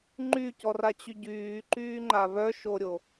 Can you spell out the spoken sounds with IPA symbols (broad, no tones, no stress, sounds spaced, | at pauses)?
ŋ͡ǃ y c ɔ r a t͡ɕ y ɟ yː ǃ yː ŋ͡ǃ a β œ ʃ o ɾʲ o